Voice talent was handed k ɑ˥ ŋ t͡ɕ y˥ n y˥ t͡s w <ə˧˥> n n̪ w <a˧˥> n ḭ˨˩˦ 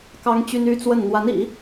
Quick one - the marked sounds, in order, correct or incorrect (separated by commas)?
incorrect, correct